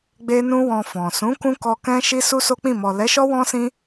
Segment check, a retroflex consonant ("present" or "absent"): absent